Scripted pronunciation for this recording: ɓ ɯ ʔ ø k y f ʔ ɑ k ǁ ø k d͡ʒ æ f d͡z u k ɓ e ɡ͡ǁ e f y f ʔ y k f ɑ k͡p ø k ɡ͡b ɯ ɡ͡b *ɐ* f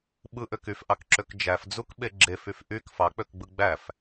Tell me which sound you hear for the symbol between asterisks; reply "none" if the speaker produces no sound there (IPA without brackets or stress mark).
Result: æ